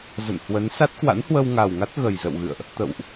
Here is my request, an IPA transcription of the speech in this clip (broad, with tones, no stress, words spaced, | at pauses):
zə̰˧˨nhwə˨˦n sa˦˥t̚kwa̰˧˥nhwə˧wŋa˨˩w ŋa˦˥t̚ɣə˨˩jzə̰˧˨wɣɨ̰˧˨ə̯ʔ | t̪ə̰˧˨wʔ